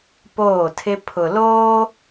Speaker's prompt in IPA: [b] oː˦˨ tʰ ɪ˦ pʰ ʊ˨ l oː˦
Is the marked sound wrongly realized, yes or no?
yes